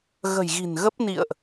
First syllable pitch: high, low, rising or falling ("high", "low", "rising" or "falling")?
low